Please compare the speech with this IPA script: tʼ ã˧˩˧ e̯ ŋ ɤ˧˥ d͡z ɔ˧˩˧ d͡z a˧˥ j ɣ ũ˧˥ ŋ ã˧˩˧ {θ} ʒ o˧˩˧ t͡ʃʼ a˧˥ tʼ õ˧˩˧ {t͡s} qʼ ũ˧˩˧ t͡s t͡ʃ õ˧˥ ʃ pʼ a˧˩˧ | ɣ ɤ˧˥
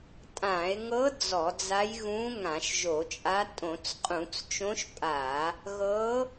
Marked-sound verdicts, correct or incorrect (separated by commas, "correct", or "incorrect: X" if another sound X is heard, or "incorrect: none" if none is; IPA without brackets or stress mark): incorrect: ʃ, correct